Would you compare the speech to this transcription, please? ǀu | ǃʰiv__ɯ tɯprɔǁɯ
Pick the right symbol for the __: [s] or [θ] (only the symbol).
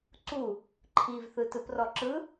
θ